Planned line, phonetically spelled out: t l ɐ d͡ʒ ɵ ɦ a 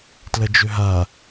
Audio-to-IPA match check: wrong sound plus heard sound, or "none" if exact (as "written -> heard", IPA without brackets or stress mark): none